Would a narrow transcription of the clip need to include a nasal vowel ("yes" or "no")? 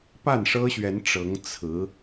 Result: no